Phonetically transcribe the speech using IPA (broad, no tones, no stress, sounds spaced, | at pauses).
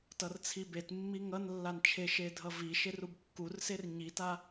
t ʌ r t͡sʰ i b e t mː i ŋ ʌ n lː a n t͡ʃʰ e ʃ e dʱ ʌ v i ʃ e r u b kː u r s e r ɲ i t a